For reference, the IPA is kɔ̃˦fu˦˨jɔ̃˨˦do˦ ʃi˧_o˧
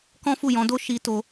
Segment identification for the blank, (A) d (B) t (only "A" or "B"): B